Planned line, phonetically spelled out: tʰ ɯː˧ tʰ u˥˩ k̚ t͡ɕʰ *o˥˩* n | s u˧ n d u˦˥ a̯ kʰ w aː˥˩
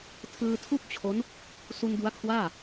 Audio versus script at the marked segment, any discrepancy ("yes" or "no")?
yes